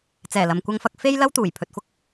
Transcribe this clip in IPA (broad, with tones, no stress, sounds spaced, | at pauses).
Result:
t͡s ɛː˨˩ l ɐ˨ m kʷ ɐ˧ ŋ f ɐ˧ k̚ f e˥ j l ɐ˥ w t̪ uː˨˩ j pʰ ɵ˨ t̚ f ʊ˥ k̚